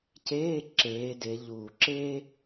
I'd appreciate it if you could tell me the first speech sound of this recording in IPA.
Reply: c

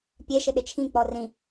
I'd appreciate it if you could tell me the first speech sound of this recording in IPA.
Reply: pʲ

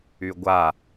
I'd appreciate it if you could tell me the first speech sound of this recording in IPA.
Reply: y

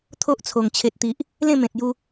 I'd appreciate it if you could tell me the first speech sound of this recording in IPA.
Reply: t̪ʰ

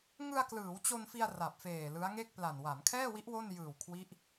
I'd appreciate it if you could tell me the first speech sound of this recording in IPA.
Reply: ŋ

